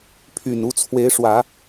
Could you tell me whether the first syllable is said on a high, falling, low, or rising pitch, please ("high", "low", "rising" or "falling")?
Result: low